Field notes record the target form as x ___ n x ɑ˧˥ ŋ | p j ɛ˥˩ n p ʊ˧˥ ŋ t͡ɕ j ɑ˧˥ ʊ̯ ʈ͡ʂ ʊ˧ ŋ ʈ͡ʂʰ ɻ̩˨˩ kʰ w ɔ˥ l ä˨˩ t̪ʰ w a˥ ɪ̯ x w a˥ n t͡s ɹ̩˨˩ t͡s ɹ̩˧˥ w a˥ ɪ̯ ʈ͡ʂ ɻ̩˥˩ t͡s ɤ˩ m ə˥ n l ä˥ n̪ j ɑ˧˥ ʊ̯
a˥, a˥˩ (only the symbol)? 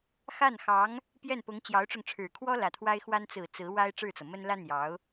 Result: a˥˩